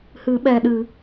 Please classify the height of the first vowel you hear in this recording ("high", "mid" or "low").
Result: high